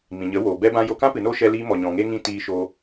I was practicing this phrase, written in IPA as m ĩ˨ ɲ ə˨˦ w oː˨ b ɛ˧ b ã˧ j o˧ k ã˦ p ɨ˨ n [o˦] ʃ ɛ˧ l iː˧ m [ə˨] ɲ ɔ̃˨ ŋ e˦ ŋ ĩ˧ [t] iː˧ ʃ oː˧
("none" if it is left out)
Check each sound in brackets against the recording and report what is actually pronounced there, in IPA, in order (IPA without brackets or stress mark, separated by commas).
o˦, ɔ˨, t